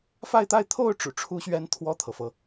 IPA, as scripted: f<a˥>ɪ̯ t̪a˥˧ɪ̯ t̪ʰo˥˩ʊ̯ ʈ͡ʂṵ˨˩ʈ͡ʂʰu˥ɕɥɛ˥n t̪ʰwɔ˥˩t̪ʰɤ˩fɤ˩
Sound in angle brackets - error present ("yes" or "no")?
yes